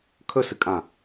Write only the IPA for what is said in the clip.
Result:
kʰ ɵ s ɨ kʼ ã

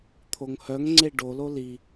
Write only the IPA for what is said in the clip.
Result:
t̪ʰ o ŋ h œ ŋ ŋ͡ǀ e ɖ o l o l i

